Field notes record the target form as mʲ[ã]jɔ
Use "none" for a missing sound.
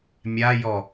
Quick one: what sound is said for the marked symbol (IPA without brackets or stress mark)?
a